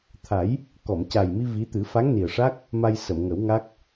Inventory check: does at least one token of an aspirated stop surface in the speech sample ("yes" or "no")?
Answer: yes